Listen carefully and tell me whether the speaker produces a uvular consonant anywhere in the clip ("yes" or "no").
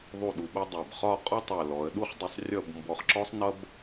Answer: yes